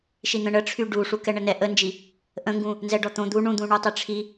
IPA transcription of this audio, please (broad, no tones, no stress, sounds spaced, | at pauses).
ʃ i n̪ ə̃ ɳ ə ʈ͡ʂʰ y ɖ u ʂ u k ɛ ɳ ə n ɛ ʔ ə n d͡ʒ i | ʔ ə̃ ŋ ɡ ũ | n z ɛ ɖ ɔ t̪ õ d̪ u ɳ ũ d̪ ũ ɳ u tˤ i ʈ͡ʂʰ i